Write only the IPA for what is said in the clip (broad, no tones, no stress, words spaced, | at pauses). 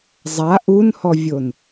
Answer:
zˤa ʔunhɔvʲon